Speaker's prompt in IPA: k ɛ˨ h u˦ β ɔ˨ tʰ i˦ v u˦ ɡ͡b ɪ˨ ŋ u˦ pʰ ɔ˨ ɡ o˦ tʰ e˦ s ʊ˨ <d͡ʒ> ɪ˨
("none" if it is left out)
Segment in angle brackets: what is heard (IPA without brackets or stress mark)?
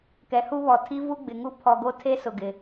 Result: ɡ